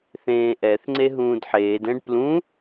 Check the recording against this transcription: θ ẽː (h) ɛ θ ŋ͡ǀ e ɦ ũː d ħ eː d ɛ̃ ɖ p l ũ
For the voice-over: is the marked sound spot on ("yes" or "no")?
no